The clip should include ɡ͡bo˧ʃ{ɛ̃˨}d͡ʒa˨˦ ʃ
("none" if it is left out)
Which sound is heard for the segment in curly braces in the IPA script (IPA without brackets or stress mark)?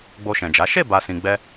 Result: ɛ̃˨